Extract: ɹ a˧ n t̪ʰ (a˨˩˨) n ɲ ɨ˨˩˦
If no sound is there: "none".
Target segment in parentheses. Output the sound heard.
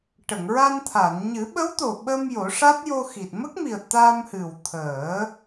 a˨˩˨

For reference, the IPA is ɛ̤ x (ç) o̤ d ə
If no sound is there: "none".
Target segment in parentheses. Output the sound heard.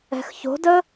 ç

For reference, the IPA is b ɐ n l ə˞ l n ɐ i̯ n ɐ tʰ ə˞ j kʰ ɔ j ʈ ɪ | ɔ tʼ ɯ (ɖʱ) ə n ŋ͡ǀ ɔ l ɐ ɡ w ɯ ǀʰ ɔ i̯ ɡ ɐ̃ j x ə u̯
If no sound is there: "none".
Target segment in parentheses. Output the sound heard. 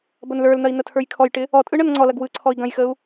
ɳ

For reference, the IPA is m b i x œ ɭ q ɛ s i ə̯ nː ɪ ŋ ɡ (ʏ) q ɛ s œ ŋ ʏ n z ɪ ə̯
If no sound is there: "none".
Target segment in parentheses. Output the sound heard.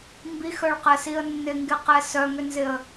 ɪ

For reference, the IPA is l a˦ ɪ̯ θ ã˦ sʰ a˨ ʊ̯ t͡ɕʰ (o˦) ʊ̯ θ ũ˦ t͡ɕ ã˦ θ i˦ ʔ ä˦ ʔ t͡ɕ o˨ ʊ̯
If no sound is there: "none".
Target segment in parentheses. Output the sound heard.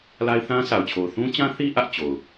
o˨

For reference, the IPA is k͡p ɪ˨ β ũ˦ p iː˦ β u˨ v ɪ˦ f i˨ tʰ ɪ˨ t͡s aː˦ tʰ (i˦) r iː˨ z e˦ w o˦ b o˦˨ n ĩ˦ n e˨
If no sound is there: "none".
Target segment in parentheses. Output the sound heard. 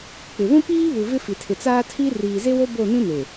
i˦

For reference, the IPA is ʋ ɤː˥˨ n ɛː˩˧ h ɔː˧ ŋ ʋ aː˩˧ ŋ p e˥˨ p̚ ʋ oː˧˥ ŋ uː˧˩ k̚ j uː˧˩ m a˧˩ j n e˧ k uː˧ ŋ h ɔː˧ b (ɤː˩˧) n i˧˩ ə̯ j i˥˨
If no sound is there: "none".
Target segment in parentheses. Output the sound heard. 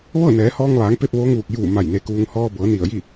ɤː˩˧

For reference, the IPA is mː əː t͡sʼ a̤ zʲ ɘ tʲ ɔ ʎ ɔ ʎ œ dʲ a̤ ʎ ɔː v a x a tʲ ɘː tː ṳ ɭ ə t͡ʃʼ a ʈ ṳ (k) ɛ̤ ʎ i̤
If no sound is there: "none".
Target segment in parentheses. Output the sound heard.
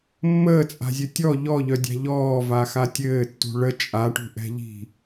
ʔ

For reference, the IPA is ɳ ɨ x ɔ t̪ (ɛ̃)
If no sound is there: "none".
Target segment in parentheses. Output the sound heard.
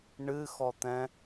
ɛ̃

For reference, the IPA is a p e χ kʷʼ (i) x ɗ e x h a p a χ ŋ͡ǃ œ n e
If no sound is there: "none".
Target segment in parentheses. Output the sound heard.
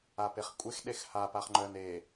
e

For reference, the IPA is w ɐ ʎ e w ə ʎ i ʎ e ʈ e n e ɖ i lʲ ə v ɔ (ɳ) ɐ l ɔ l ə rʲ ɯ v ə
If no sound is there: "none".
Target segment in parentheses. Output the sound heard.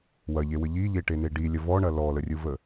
ɳ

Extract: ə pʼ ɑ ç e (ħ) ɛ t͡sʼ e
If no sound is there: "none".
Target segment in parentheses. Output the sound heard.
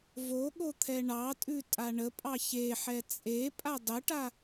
ħ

